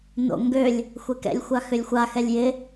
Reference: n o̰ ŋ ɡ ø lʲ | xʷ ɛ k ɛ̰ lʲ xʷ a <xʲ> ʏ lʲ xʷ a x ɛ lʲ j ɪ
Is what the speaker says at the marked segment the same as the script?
no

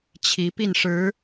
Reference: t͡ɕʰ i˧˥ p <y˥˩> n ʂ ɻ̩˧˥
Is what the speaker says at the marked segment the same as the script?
no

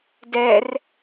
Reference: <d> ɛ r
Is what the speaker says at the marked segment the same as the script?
yes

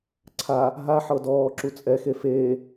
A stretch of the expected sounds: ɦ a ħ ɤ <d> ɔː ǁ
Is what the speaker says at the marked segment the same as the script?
yes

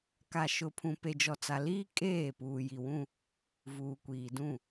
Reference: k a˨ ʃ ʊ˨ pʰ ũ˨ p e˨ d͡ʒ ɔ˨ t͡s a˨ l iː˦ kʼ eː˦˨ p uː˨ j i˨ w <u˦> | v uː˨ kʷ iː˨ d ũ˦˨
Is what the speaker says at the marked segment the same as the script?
no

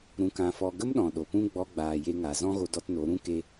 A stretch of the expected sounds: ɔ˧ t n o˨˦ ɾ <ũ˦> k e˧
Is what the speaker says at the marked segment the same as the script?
yes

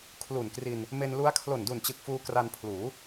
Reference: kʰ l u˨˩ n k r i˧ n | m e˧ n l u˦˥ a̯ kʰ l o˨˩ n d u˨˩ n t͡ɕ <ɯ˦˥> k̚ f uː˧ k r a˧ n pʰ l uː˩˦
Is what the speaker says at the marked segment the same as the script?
no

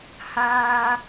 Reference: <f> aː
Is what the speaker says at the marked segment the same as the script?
no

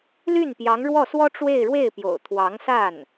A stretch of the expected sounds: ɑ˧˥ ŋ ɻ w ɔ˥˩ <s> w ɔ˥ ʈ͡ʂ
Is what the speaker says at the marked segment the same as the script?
yes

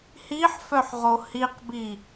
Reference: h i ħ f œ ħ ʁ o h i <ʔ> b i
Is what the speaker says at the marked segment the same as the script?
no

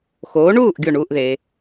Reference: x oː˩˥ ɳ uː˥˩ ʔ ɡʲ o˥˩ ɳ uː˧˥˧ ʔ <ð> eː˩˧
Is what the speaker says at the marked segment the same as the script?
yes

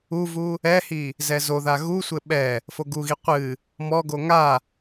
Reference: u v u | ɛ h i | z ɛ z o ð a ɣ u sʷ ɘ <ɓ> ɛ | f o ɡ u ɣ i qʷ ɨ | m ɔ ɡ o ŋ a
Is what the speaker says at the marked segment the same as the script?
yes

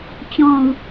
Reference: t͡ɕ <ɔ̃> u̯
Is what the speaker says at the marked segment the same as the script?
yes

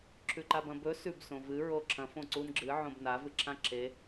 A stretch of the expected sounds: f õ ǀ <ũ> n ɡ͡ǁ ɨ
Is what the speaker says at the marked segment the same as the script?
no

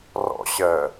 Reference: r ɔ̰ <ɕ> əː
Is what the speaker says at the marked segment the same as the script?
yes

